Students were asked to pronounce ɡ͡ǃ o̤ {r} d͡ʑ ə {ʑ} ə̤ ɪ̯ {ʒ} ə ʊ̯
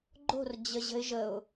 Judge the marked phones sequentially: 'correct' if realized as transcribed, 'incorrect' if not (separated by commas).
correct, correct, correct